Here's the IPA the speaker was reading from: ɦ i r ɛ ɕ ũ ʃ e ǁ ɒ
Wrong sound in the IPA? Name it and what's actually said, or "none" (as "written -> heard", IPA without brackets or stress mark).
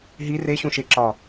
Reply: ɛ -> e